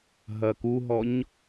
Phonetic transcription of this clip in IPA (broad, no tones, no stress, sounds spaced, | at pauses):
ɦ ɐ k u ɦ ɔ ɲ